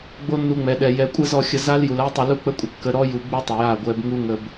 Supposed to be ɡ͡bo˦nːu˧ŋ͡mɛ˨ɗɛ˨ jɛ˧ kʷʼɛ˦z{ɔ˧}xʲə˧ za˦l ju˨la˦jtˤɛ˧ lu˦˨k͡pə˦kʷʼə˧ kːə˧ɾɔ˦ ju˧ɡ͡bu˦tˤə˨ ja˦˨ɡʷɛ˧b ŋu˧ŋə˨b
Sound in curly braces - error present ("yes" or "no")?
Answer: no